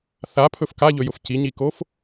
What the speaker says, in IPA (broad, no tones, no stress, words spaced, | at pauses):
θapʰɵf kaʎɵjʊf ciɲikof